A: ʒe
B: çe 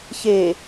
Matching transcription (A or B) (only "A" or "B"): B